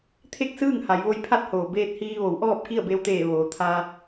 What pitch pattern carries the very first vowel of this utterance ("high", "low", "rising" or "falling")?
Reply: falling